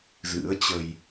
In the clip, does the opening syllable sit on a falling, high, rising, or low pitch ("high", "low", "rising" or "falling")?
rising